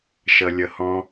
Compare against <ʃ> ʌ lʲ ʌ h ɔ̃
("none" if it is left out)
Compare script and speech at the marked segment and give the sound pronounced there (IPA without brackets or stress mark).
ʃ